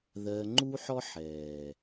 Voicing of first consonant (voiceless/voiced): voiced